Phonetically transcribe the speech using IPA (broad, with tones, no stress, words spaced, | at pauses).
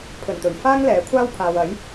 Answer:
pʰɵ˨˩nt̪ɵ˨˩ɥ faː˥ŋlɛː˨˥ kʷʰaː˥wpʰaː˨w ɐ˨˥j